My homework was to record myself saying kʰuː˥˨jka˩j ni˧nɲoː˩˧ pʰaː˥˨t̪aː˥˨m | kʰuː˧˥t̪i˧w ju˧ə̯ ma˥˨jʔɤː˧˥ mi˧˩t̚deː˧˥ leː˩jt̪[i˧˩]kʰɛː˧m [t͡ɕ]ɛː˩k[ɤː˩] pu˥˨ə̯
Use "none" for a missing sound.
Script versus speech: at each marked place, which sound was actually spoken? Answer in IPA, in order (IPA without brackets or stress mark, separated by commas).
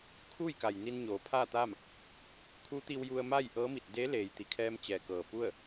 i˩, t͡ɕ, ɤː˩